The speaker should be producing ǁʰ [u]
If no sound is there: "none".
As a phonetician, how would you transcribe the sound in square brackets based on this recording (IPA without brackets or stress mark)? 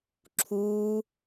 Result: u